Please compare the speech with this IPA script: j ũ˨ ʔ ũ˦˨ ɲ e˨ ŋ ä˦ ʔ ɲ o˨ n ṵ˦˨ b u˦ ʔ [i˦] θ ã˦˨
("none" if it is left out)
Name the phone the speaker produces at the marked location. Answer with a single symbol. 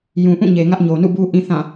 ĩ˦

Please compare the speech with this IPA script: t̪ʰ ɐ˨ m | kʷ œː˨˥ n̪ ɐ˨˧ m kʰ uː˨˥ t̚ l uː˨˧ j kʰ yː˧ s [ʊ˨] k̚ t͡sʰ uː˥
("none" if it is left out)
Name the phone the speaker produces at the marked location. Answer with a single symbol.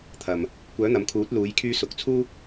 ʊ˨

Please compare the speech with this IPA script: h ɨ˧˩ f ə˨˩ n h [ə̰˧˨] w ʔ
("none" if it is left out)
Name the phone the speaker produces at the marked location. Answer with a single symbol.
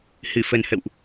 ə̰˧˨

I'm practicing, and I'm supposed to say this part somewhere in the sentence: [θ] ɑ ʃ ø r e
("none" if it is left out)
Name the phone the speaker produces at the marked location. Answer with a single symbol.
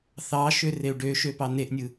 θ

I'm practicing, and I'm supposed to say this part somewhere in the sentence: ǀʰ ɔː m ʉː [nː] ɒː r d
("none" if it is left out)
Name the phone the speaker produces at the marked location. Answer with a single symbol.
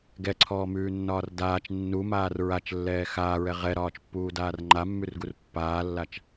nː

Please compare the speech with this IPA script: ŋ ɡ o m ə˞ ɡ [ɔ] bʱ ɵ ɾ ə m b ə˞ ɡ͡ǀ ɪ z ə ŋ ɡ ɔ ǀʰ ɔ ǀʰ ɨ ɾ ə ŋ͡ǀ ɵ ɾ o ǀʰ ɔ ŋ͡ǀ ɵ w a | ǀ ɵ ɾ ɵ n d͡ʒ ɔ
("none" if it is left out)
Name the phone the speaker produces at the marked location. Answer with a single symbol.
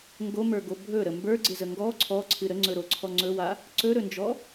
o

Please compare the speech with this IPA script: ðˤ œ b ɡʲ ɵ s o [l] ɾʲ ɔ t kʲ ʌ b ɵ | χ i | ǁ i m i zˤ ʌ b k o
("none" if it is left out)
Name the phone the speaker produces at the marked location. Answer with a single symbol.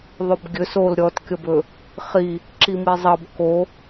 l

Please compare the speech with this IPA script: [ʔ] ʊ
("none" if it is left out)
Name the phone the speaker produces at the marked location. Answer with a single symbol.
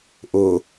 ʔ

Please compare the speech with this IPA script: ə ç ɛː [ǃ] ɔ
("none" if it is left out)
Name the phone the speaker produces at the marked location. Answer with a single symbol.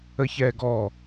ɡ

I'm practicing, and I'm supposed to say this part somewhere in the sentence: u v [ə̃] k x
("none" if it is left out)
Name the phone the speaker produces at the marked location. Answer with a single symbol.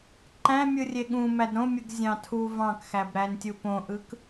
ɑ̃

